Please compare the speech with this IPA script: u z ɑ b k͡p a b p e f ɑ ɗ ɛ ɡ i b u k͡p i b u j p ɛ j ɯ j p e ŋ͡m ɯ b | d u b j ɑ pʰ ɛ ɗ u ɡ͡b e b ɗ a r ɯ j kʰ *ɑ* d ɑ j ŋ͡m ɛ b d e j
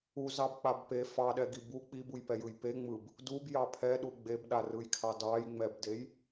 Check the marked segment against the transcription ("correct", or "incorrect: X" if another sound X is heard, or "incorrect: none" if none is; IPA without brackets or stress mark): correct